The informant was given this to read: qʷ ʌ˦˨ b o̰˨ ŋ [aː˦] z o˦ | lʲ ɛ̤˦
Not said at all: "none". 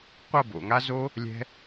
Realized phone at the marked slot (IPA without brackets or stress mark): a˦